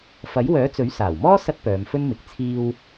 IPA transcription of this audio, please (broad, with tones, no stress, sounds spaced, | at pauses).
f ɐ˨˥ j w œː˨˥ t͡s ɵ˨˥ ɥ s aː˨˩ w m ɔː˥ s ɐ˥ t̚ p œː˨˧ m f ɵ˥ n m ɪ˨˥ k̚ t͡sʰ iː˧ w